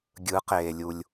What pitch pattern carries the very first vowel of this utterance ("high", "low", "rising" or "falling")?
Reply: rising